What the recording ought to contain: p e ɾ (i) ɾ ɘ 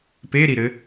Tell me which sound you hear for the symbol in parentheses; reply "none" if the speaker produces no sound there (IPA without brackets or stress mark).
i